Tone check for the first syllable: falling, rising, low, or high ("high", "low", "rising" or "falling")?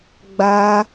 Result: high